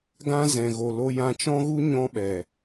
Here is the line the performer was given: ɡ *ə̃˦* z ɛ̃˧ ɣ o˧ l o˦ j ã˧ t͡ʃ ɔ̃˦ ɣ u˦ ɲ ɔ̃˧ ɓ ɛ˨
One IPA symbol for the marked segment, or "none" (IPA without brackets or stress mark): ã˦